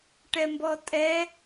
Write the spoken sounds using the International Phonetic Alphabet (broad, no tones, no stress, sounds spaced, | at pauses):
ʈ ɛ m b ɔ tʼ ɛ